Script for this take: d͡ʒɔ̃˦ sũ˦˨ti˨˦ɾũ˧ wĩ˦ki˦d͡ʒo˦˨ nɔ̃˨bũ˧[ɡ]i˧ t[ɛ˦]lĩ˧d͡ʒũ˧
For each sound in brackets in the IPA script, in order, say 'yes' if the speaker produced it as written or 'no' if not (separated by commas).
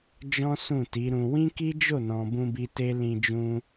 no, no